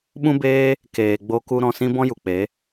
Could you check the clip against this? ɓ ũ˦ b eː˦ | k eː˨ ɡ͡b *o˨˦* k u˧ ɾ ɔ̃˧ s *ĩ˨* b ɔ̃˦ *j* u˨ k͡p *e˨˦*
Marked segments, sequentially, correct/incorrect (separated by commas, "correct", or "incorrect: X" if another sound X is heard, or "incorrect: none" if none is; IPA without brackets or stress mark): incorrect: o˧, incorrect: ĩ˦, correct, correct